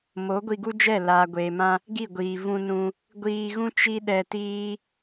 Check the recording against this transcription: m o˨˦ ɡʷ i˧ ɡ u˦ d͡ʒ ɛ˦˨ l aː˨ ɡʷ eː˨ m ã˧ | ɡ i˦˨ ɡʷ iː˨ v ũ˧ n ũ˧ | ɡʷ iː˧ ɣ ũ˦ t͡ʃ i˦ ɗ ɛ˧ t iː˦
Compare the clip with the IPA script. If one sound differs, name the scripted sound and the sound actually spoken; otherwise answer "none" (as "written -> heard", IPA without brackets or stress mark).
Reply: none